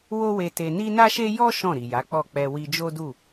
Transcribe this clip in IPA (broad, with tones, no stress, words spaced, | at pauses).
wo˦we˧te˧ ni˦ na˦ʃe˦ jɔ˦ ʃɔ̃˦˨ɾi˨ja˨˦k͡pɔ˦˨ k͡pɛ˧wi˧d͡ʒo˦du˦˨